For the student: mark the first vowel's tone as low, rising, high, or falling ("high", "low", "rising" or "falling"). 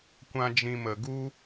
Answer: high